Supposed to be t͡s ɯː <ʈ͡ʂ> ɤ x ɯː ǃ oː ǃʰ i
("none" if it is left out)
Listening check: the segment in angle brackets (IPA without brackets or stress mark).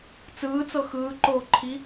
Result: t͡s